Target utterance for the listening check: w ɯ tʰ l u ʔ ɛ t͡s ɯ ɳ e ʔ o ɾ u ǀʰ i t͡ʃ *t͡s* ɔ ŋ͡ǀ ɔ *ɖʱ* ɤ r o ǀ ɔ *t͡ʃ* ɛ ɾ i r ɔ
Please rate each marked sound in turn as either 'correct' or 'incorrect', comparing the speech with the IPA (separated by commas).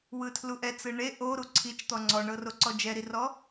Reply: incorrect, incorrect, incorrect